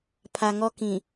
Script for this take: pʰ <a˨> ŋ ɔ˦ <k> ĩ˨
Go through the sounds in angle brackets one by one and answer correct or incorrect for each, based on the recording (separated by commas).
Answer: correct, correct